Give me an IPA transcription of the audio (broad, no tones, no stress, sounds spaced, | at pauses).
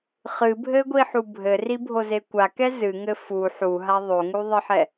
χ ɨ bʱ ɘ ɡʷ i ħ u bʱ ɘ r i bʱ o z e kʷ a k ɛ z ɨ ŋ ɘ f u ħ u ɦ a ðˤ o ŋ u ðˤ ɘ ħ ɛ